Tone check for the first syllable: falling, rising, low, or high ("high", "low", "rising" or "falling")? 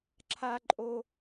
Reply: high